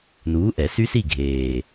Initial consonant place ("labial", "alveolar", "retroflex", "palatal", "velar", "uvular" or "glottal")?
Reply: alveolar